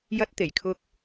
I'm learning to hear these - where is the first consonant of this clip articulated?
palate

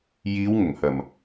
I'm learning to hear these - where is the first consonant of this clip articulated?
palate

